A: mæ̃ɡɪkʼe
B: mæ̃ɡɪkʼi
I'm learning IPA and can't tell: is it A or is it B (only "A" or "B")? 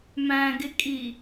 B